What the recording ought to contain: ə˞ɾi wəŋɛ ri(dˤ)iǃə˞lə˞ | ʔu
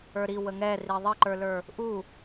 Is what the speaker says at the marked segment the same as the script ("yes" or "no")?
no